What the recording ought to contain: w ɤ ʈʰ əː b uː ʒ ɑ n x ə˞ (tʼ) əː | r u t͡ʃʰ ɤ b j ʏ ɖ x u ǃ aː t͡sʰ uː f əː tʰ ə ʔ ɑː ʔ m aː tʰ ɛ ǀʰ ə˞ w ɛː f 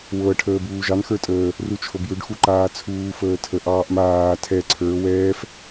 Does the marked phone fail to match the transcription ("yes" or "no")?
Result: no